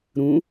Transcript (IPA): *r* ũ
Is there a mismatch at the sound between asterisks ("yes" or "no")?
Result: yes